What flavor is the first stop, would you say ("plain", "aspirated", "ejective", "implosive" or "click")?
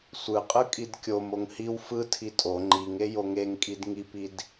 ejective